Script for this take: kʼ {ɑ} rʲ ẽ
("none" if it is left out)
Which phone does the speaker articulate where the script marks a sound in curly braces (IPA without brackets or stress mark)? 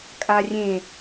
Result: a